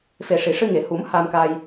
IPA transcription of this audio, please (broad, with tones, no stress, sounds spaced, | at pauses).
f e˨˩ ʂ i˨˩˨ ʂ ɨ˧ ŋ e˨˩˨ h u˨˩˦ m h a˧ m k a˧ j